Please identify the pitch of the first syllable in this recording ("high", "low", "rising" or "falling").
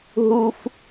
high